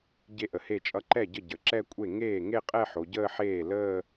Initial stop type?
plain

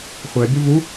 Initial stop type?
plain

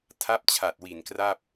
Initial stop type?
aspirated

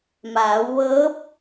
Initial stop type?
plain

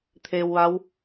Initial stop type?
aspirated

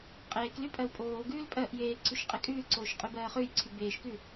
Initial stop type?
ejective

